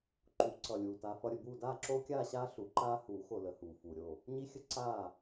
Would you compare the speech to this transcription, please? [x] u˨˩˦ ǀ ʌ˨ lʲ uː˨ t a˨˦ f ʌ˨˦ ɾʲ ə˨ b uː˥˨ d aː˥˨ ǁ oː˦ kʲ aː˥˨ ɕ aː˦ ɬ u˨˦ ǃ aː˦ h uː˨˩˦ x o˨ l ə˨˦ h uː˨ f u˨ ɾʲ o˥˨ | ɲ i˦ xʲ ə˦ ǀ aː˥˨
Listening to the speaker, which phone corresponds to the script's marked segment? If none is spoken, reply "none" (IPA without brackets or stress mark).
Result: ǃ